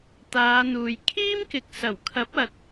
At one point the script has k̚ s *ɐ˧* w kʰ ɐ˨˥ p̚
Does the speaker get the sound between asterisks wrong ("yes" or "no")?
yes